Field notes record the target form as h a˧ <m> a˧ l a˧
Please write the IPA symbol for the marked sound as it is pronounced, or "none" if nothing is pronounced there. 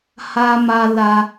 m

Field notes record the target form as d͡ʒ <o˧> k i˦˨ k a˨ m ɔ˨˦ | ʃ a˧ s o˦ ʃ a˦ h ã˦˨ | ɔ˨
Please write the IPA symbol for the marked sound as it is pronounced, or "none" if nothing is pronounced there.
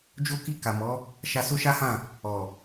o˦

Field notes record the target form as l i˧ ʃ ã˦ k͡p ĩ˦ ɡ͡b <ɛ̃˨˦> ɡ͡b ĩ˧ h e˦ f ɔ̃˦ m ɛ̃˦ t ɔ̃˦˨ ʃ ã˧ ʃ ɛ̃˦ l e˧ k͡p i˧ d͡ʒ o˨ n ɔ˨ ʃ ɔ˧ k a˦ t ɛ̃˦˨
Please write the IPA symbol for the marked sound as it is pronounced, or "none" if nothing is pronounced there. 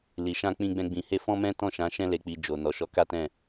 ɛ̃˦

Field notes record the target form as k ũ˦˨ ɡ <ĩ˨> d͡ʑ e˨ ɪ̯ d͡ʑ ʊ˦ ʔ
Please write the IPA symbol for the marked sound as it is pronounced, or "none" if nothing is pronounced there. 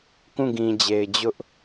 ĩ˨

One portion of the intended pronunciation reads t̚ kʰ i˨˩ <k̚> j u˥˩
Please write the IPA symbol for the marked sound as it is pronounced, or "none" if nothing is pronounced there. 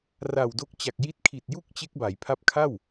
t̚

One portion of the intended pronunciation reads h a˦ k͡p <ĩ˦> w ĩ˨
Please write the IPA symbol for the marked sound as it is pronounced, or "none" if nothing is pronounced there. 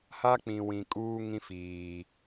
ĩ˨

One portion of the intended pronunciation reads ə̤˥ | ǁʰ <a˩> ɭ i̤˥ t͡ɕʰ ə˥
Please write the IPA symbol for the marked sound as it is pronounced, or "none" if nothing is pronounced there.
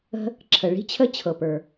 ə˩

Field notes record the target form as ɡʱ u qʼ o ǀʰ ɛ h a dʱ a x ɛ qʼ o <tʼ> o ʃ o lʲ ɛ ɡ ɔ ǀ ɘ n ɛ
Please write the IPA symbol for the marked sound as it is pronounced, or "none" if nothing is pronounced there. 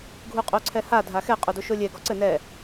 d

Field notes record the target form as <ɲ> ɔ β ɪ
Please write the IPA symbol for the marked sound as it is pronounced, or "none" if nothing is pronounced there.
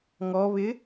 ŋ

